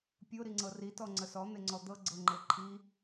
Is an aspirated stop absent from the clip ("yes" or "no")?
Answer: no